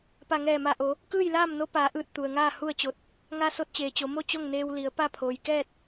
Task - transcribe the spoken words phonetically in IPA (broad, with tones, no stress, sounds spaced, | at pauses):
p a˧˩ ŋ ɛː˧˩ m a˧˩ ʔ o˩˧ | k ɯː˥˨ j l aː˥˨ m n o˧˥ p aː˩˧ ʔ ɯː˧˩ t̚ t̪ u˩ ə̯ ŋ aː˥˨ h u˥˨ ə̯ t͡ɕ o˧˩ t̚ | ŋ a˧ s o˧˥ t̚ t͡ɕ eː˩ t͡ɕ o˩˧ m o˥˨ t͡ɕ o˥˨ ŋ n eː˧ w l i˩˧ ə̯ p a˥˨ pʰ oː˩ j k ɛː˥˨ t̚